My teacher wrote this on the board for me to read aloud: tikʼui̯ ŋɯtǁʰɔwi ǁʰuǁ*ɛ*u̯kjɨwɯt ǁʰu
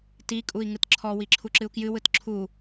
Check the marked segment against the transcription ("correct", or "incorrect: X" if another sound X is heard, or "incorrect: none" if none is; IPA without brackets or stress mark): incorrect: ɨ